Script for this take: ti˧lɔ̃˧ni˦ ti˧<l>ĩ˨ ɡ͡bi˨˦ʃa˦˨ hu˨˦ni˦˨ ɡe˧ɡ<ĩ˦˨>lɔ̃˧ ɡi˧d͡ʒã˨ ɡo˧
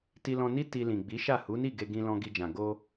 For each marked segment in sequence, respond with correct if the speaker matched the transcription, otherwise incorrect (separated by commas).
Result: correct, incorrect